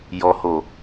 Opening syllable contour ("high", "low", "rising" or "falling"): low